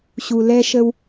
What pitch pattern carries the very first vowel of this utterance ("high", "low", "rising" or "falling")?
low